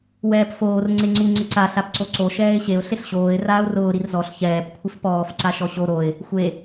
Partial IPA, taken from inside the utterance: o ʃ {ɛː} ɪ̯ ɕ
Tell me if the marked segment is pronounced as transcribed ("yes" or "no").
yes